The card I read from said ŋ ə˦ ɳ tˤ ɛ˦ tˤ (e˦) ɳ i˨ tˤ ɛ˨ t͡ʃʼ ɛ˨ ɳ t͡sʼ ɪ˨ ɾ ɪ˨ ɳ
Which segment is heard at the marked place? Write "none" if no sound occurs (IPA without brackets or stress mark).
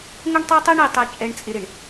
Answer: e˦